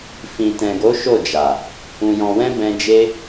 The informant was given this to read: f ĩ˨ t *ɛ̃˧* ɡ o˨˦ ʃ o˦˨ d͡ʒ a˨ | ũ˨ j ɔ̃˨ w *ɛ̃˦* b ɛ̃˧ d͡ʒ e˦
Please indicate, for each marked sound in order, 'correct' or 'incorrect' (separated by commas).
incorrect, incorrect